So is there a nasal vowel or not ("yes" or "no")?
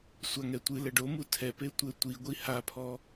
no